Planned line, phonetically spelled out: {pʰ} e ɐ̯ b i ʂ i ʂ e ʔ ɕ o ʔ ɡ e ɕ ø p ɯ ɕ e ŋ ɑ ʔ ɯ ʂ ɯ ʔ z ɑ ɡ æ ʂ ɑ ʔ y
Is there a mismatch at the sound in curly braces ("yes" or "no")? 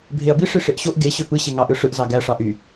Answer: yes